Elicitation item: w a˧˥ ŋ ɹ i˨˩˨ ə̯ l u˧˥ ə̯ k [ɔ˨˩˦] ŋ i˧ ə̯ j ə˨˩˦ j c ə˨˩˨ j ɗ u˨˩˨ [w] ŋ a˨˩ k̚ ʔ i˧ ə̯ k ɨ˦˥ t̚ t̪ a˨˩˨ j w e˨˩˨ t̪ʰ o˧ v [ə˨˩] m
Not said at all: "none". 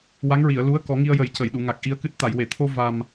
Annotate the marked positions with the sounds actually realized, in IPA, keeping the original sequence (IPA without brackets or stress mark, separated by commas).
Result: ɔ˨˩˦, none, a˨˩